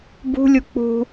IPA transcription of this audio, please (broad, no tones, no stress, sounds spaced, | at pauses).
b ṳ lʲ u k͡p ṳ